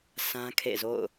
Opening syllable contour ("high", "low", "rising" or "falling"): high